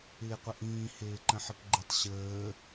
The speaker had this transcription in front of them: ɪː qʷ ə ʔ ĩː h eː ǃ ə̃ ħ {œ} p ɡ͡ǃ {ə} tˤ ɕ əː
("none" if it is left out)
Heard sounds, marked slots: ə, ɪ

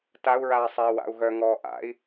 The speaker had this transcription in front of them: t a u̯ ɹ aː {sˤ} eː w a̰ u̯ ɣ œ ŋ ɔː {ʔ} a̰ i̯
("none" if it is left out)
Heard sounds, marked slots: sˤ, ʔ

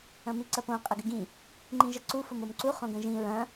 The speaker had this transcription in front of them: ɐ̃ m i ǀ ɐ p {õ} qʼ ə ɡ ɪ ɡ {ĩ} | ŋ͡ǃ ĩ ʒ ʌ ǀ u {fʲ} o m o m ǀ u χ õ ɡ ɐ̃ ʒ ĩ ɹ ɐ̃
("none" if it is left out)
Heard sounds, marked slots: õ, ĩ, f

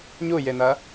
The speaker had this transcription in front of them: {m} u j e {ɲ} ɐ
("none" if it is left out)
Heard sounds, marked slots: ɲ, n

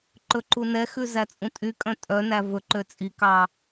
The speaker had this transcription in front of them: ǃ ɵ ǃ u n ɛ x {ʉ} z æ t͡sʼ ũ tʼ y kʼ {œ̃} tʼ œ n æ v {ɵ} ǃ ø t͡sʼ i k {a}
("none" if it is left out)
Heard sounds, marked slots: ʉ, œ̃, ɵ, ɑ

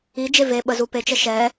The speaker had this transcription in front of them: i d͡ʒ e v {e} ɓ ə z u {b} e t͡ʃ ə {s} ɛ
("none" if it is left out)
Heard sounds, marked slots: e, p, ʃ

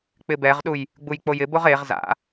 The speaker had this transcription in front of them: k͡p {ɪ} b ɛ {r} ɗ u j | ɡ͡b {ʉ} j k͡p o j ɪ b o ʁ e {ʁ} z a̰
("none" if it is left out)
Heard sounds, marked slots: ɪ, ʁ, u, ʁ

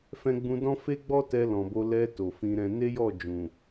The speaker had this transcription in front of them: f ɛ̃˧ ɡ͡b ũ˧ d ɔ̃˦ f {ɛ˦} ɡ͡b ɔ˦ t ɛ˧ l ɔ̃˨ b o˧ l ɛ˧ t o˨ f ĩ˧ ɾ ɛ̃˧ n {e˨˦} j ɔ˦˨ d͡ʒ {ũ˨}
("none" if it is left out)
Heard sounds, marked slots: e˦, e˦, ũ˨

